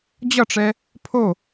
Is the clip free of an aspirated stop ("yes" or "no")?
no